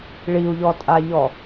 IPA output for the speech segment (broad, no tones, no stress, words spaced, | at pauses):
ɭiu̯ʎɔtʼaʎɔ